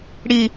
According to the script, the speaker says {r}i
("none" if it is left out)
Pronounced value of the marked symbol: ɽ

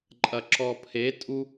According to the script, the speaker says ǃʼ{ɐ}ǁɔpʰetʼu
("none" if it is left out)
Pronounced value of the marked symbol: ɐ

